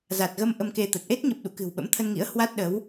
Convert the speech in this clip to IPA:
za˨˩t̚ɣə˧m ʔə˧mke˧t̪ə˨˩t̚ ʔe˦˥t̚ɲə˨˩p̚ɗṵ˧˨ kɨ̤˨˩wɓə̰˧˥mt̪ʰə˧nŋḭ˧˥ə̯ hwa˦˥t̚ɗə˨˦w

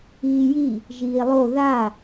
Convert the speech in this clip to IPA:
iːji | ʒiːlˠo ða

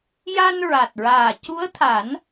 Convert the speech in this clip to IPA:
ja˧nɹa˨˩t̚ɹaː˨˩ cu˧˥ə̯t̪ʰa˨˩˦n

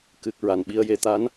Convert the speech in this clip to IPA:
kɨ˨˩k̚ ɹa˨˩nɓi˧ə̯je˧ t̪a˧˥n

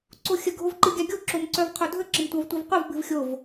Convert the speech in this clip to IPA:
ǀoxʲə ɡʱovǃɨɡʲaɡʲo ǁomǀœvqʰodʱə ǁəmtʷavtʷɨvqʷœv bɨvxʲov

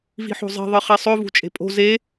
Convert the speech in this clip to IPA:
vi̤ħo̤zˤe̤ ðˤɨχisˤɵ vṳt͡ʃʼe̤pʼo̤ ze

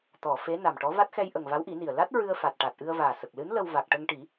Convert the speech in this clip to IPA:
t̪ɔ˨˩˨ fe˧˥ na˨˩mʈɔ˧˥ va˦˥t̚xɛ˧jʔə˨˩ŋ va˧˥wʔi˨˩˦ni˨˩ə̯ la˦˥t̚ ɹɨ˧ə̯fa˨˩t̚ ʈa˨˩t̚ʔɨ˧ə̯vaː˨˩sə˨˩k̚ lɨ˧˥n lə˧w va˨˩k̚ʈə˧ŋʈi˨˩˦

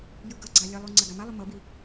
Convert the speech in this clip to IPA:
jɯɡʌɡ͡ǀa lʲʌlˠu ŋ͡ǀaɡamalˠu mʌbi

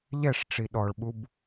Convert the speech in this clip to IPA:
ʎɛʂʈ͡ʂi ɗɔɭɓub

